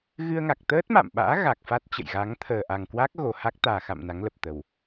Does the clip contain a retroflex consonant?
no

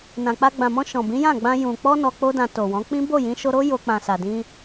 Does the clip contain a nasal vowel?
yes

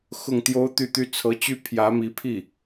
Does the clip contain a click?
no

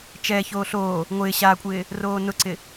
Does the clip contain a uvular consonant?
no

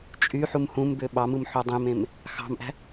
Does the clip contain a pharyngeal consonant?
yes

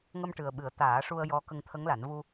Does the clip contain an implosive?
yes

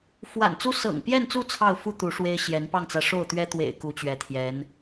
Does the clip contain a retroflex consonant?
yes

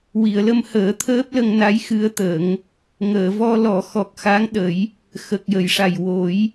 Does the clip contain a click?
no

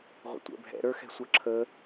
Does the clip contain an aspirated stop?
yes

